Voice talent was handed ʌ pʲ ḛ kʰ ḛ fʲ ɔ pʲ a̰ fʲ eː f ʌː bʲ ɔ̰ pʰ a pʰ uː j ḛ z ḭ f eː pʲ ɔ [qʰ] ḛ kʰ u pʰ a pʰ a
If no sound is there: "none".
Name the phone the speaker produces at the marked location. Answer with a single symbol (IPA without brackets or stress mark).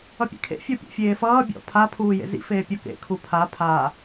k